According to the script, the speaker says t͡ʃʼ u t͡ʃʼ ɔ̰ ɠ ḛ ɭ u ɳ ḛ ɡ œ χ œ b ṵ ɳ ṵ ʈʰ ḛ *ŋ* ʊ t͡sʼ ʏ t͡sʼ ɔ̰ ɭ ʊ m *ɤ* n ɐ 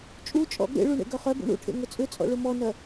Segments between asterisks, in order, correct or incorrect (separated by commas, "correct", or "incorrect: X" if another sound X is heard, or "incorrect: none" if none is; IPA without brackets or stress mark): correct, incorrect: ɔ